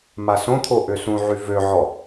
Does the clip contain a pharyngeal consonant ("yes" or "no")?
yes